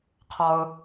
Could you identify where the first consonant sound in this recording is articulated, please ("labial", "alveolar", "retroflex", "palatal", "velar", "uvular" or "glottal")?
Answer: uvular